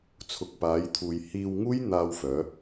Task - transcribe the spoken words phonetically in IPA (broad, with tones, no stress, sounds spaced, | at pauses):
t͡sʰ ʊ˨ k̚ p aː˨˧ j t̪ʰ uː˨ j h iː˧ w ŋ uː˥ j n̪ aː˧ w f œː˨˧